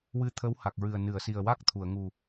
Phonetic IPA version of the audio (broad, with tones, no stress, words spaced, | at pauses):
wɨ˧t̪ʰə˧˥wha˨˩k̚ɹɨ˨˩ə̯ nɨ˨˩˨ə̯si˨˩ə̯ wa˦˥k̚t̪ʰu˨˩˨ə̯ŋu˨˩